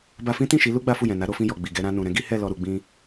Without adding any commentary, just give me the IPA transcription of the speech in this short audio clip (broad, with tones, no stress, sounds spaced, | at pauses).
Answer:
b a˧ f ĩ˦ t ĩ˦˨ ʃ i˨˦ l u˦ ɡ͡b a˦ f u˦˨ j ɛ̃˨ n a˨˦ ɾ o˧ f ĩ˧ j ɔ˨ ɡ͡b i˨ ɡ ɛ˧ ɾ ã˧ n ũ˨ ɾ ɛ̃˨˦ ɡ i˦ h ɛ˦˨ l ɔ˨ ɾ u˨ ɡ͡b ĩ˧